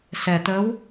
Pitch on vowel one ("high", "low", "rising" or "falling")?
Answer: low